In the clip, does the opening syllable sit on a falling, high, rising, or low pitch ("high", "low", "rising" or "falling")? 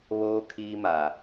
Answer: high